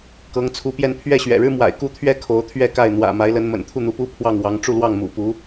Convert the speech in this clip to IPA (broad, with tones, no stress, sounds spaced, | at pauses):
k ɤ˧˥ ŋ t͡sʰ u˧˥ p j ɛ˥˧ n pʰ ɥ ɛ˥˩ ɕ ɥ ɛ̰˨˩ ɻ ɻ̩˥ m w a̰˨˩ ɪ̯ k u˥˩ t̪ʰ ɥ ɛ˥ kʰ o˧˥ ʊ̯ t̪ʰ ɥ ɛ˥˧ k a˥˩ ɪ̯ n̪ w ä̰˨˩ m a˧˥ ɪ̯ l ə˧˥ n m ə̰˨˩ n t̪ʰ u˥˩ n̪ u˧˥ p u˥ pʰ w ɑ˥˩ ŋ w ɑ˧˥ ŋ ʈ͡ʂ u˥˧ l w ɑ˥˩ ŋ m ṵ˨˩ p u˧˥